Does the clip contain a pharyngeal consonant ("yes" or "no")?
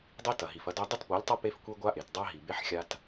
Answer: yes